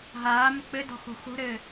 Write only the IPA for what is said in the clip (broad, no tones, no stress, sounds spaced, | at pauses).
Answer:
ɦ aː m ɵ k͡p ɘ d ɔ̤ x o̤ x o̤ ɾ ɘː